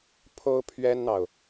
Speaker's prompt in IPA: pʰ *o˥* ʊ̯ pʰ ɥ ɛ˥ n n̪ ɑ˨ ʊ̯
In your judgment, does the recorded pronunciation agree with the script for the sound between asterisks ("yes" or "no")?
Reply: yes